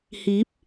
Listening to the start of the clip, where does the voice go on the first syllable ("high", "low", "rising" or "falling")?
rising